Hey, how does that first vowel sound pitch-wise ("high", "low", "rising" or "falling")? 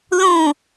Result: falling